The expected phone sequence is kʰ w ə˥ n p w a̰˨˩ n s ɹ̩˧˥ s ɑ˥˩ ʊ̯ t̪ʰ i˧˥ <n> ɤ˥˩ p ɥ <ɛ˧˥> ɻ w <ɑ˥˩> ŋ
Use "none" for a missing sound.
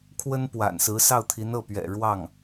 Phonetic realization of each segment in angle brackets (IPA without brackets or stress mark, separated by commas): n, ɛ̰˨˩, ɑ˥˩